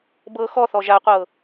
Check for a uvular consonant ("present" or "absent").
present